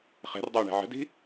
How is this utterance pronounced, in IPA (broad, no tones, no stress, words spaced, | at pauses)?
χɛ̤rdˤɛwɳɛ̤ ʕə̤di̤